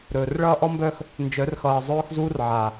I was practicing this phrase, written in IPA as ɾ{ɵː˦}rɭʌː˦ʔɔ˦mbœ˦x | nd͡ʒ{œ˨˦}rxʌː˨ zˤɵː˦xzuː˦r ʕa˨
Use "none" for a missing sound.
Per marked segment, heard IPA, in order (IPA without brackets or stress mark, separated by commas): ɵː˨, œ˨˦